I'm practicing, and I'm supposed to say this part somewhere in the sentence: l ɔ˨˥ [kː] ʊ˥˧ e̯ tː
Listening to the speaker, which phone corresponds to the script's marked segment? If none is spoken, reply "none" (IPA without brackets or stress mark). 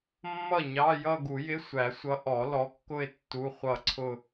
kː